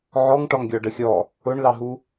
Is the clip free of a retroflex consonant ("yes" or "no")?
no